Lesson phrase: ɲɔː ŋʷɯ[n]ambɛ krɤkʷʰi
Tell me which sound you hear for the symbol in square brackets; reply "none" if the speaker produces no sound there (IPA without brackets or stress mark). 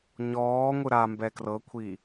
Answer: ɾ